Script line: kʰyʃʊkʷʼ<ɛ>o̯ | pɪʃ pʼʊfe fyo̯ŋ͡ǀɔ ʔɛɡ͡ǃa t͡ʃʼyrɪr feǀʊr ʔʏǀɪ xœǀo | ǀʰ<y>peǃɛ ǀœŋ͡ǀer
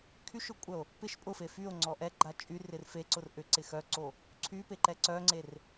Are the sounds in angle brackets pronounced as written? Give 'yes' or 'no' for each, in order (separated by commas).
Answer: no, yes